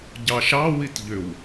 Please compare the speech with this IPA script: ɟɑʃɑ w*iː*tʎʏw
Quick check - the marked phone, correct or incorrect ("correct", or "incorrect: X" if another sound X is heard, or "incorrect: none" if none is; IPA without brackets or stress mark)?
incorrect: i